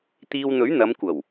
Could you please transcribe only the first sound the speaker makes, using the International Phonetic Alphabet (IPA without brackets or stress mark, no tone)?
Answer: t̪